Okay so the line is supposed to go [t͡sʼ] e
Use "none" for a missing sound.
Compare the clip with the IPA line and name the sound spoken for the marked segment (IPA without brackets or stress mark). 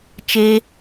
t͡ʃ